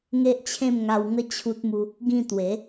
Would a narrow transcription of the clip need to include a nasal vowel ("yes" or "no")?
yes